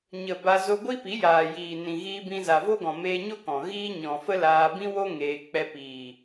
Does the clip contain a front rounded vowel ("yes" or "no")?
no